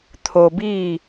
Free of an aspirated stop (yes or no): no